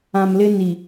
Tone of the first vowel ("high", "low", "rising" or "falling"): low